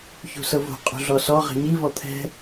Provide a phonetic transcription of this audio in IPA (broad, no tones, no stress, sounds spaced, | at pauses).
ç ṳ s ɤ v o̤ qʼ ṳ ɮ ɔ s ɔ ʁ ɛ̤ ɲ i v ɔ t̪ʰ ɛ̤